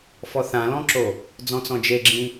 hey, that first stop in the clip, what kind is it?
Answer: click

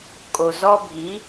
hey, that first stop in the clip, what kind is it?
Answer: ejective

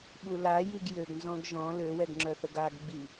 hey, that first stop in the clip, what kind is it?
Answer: implosive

